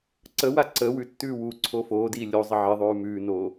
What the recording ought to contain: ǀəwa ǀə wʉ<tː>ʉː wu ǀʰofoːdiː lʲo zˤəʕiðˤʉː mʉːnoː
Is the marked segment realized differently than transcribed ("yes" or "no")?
no